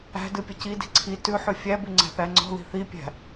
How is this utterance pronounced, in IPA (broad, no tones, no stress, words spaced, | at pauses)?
æ̤dɨ pʲəcidi̤ ǀʰi tʉħʉ fʲæbʉ ŋ͡ǀæ̤θæŋ͡ǀɔ̤ði̤ θipʲæ̤